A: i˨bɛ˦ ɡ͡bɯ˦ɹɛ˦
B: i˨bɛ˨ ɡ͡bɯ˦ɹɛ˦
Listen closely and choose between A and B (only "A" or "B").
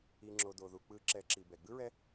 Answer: B